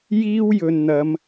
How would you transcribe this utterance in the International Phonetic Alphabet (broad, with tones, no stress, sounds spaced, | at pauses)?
j iː˥ w j ɵ˨ n n̪ ɐ˨˧ m